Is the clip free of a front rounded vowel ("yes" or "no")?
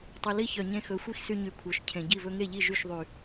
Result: no